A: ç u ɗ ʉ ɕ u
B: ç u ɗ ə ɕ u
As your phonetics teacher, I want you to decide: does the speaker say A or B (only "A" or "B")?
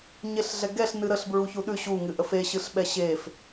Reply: A